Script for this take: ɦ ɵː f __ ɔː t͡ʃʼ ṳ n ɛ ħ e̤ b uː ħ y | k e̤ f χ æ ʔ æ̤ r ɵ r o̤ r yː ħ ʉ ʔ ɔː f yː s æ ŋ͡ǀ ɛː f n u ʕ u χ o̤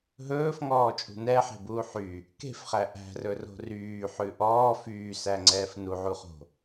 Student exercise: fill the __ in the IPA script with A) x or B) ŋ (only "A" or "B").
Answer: B